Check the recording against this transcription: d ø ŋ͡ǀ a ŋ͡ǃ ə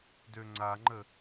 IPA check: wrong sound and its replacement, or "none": none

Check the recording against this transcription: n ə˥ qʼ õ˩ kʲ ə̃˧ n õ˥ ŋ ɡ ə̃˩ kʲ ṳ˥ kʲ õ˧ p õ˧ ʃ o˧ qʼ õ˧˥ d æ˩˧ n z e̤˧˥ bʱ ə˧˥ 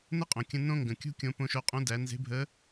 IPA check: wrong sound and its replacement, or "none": none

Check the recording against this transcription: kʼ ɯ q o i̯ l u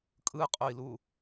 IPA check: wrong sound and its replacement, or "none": q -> qʼ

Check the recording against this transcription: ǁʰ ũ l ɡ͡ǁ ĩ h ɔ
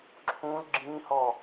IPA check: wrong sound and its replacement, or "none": none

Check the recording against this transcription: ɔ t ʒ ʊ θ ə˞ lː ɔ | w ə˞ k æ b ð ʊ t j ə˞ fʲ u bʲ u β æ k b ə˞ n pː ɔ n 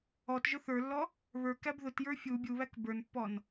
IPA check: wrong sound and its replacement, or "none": w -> β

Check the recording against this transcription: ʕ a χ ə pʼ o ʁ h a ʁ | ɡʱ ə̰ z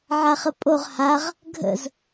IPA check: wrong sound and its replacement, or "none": none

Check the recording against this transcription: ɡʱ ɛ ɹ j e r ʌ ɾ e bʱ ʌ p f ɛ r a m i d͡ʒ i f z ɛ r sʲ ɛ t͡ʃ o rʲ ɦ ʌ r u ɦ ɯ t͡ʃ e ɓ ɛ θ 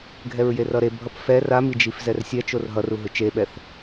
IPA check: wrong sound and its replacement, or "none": rʲ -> r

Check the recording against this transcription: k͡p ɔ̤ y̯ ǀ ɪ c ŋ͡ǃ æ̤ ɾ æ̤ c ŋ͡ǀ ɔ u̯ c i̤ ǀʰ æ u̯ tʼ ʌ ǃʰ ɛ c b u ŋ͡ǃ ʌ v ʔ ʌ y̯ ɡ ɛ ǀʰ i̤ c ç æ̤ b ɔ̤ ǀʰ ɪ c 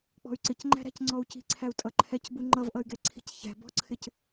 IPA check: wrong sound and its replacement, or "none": none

